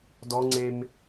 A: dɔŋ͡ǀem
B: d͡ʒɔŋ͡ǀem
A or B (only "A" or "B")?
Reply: A